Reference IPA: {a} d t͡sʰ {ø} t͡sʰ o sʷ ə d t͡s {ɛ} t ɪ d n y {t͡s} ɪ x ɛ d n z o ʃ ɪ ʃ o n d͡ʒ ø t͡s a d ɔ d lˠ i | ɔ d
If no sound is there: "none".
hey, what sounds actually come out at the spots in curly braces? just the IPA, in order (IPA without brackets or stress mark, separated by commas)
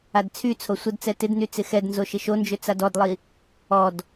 a, y, ɛ, t͡s